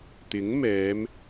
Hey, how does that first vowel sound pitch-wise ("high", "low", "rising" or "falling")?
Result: rising